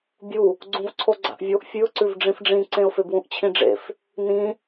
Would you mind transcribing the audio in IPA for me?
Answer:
bʲ u | ɡ͡ǀ ũ v ǀʰ o ɡ͡ǀ a̰ ʔ vʲ o ʔ fʲ ʉ ʊ̯ ǀ ʉ v ɖ͡ʐ ĩ f ɖ͡ʐ ĩ ǀ ẽ ʊ̯ f e b w ũ ʔ t͡ɕʰ ĩ ɖ͡ʐ ḛ f | n ĩ

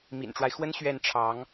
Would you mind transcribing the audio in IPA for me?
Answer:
m ḭ˨˩ n ʈ͡ʂ w a˦ ɪ̯ x w ə˥ n ɕ ɥ ɛ˥˩ n ʈ͡ʂʰ ɑ˧˥ ŋ

